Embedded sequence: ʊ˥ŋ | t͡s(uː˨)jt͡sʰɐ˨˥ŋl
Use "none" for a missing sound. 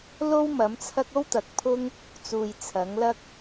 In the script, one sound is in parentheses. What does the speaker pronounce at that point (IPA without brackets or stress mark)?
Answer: uː˨